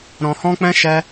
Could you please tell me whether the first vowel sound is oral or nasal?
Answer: nasal